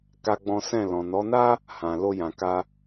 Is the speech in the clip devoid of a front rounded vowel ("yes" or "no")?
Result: yes